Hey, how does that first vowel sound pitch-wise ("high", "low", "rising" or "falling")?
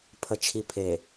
low